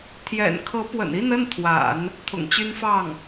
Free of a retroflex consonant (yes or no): yes